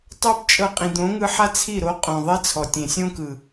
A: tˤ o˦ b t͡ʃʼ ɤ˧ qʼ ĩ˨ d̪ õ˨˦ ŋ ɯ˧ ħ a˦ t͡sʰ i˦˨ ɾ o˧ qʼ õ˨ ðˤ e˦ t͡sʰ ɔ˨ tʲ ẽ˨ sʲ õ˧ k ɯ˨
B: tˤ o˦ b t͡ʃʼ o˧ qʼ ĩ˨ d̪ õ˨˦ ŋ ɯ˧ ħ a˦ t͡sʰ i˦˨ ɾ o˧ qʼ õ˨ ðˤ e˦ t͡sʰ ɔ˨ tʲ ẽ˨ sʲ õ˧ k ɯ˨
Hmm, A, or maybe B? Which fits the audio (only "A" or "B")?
A